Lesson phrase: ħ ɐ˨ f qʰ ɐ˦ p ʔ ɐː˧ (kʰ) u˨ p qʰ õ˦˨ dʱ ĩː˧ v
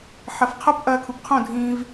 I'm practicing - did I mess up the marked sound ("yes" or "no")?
no